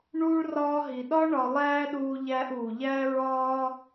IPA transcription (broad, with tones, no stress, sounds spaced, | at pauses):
ɳ uː˦ ɭ r ɒː˧ ɦ i˨ ɗ ɒ˦ ɳ ɒ˧ lˠ æː˦ ɗ uː˧ ʎ æː˧ ʔ uː˨ ʎ æ˦ ɹ ɒː˦